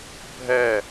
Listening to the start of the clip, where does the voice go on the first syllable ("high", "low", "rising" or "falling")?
falling